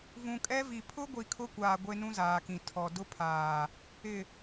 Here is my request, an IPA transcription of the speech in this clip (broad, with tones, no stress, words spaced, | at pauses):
vũ˨kʼɛ˦vi˨ pʰʊ˦ɡʷi˨ kʰʊ˦kʷaː˨ ɡʷe˦nũ˦zaː˨kĩ˨ tʰɔ˨ dʊ˦pʰaː˨ | ɪ˨